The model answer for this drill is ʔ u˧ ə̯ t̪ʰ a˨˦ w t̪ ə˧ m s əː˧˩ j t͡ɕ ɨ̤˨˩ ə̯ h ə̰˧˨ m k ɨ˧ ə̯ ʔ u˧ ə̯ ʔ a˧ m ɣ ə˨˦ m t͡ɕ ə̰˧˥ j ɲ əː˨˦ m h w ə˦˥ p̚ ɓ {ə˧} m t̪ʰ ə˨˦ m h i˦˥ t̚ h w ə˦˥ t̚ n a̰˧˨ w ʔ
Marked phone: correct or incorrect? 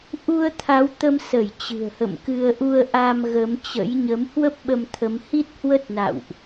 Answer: correct